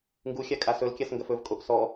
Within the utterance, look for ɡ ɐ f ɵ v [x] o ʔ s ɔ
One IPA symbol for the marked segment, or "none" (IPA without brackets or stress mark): kʼ